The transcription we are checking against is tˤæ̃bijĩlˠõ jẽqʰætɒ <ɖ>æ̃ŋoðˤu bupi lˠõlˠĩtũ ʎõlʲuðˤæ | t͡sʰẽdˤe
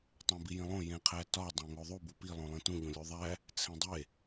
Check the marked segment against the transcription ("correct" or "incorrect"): incorrect